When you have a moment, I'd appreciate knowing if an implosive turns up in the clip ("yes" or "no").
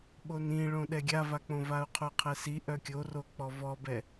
yes